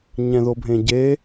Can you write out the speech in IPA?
ɲ ɛ̃ ð o bʱ ẽ ɟ e

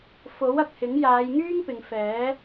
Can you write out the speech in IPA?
f o˨˥ w ɐ˨ k̚ h ɪ˨˥ ŋ j aː˨˧ j ŋ yː˥ ŋ p ɪ˨ ŋ f ɛː˨˥

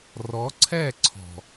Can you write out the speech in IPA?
r ɔ˨˦ ǀʰ ɛ˦˨ ǀʰ ɔ̤˨

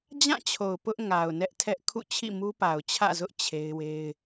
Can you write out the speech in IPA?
d͡ʑ ã˦˨ t͡ɕʰ o˨ ʊ̯ p ʊ˦ ʔ ŋ a˨ ʊ̯ n ɛ˦ ʔ tʰ ɛ˦ ʔ kʰ ṵ˦˨ t͡ɕʰ ḭ˦˨ m u˦ p a˨ ʊ̯ t͡ɕʰ ä̰˦˨ z ʊ˦ ʔ t͡ɕʰ e˦ ɪ̯ w e˦ ɪ̯

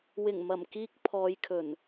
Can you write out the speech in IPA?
w ɪ˨˩ ŋ m ɐ˨˩ m k iː˧ k̚ pʰ ɔː˨˧ j kʰ ɵ˨˩ n

